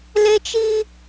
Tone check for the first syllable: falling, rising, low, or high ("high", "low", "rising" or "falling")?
high